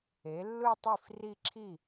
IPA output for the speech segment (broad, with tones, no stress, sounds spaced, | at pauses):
e˩˥ lː ɯ˥˧ tˤ i˥˩ f r i˥˧ ǁʰ i˥˩